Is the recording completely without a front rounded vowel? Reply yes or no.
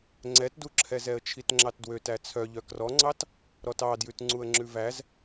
no